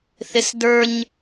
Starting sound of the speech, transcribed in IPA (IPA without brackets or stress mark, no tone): θ